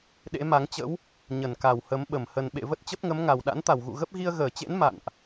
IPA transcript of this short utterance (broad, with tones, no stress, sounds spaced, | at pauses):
ɗ ḛ˧˥ m a˨˦ ŋ t͡ɕ ə̰˧˥ w | ɲ ə˧˩ n k a˧˩ w h ə˨˦ m ɓ ə˧˩ m h ə˨˩ n ɓ ḛ˧˨ v ə˦˥ t̚ t͡ɕ ə˦˥ p̚ ŋ ə˨˦ m ŋ a˨˩ w ɗ a̰˧˥ n t̪ a˧˩ w ɣ ṵ˧˨ ɣ ə˦˥ p̚ ɣ i˧ ə̯ ɣ əː˧˩ t͡ɕ ḛ˧˥ n m a̰˧˨ n ʔ